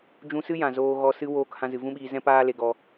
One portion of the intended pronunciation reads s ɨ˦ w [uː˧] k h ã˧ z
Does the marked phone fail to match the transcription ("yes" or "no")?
yes